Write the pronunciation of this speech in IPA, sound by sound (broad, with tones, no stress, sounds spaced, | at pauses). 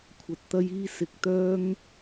kʷʰ ɐ˧ t̚ t̪ ɐ˥ j iː˥ s ɪ˧ k̚ t̪ œː˥ ŋ